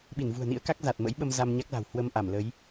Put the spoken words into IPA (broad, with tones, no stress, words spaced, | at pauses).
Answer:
ɓi˧˩nvṳ˨˩ə̯nḭ˧˥ə̯ka˦˥k̚ za˨˩t̚mə̰˧˥jɓə˧m za˧mɲa˦˥k̚la̤˨˩w hwə˧mʔa˧˩mlə˨˦j